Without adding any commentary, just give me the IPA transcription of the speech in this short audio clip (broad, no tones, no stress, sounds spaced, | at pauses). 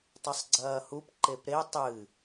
tˤ ɨ sˤ ɡ͡ǀ ɐː h u p ǃ e p ɾ e tˤ ɨ